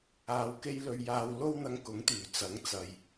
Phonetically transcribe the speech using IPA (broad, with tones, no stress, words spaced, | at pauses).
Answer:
aː˧wke˥jlɵ˧ɥ jaː˧w lo˥wn̪ɐ˧ŋkʊ˨˥ŋt̪yː˨˩ t͡sɐ˨˥ŋt͡sɐ˨j